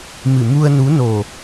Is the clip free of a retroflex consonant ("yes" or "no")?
yes